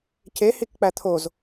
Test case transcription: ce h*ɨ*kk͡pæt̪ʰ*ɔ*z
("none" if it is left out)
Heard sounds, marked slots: i, o

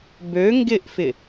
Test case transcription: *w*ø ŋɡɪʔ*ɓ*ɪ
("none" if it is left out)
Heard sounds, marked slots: b, f

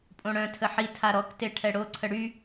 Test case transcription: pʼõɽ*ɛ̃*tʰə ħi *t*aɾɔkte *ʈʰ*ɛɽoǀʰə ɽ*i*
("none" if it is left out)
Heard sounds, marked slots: œ̃, tʰ, ʈʰ, y

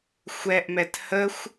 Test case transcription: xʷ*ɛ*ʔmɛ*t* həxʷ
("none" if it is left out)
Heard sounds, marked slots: ɛ, t

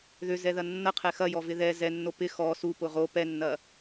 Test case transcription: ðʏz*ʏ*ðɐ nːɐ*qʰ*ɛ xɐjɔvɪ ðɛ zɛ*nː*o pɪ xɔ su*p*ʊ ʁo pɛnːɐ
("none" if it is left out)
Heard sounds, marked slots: ɛ, qʰ, nː, p

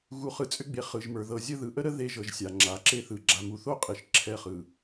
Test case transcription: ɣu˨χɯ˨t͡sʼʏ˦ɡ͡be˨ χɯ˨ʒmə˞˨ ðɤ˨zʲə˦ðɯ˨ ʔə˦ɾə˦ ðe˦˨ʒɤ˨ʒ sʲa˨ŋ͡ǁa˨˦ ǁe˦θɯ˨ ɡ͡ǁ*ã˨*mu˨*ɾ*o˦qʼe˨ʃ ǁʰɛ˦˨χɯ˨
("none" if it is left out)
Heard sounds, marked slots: a˨, θ

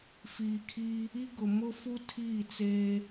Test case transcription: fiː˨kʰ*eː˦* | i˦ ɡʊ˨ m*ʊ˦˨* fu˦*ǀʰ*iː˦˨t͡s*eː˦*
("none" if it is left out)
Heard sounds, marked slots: iː˦, ʊ˦, tʰ, eː˦

